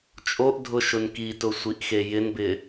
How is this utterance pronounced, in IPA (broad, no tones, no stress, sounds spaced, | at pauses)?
t͡ʃʼ o ʔ dʱ ʊ ʃ ʊ n k i t ʊ sʷ i ʔ x e j ɪ n b ɪ